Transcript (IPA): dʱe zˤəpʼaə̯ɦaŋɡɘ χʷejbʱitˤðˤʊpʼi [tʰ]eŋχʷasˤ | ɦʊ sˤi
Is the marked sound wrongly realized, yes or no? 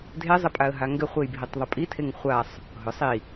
no